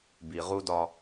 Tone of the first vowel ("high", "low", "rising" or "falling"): low